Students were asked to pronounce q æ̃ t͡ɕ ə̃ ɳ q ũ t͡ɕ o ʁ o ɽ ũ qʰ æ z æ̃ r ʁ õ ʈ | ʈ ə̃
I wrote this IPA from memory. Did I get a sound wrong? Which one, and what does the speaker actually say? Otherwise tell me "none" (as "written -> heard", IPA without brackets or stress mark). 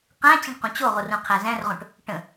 ɽ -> r